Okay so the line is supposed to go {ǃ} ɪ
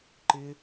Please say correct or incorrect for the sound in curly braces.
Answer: correct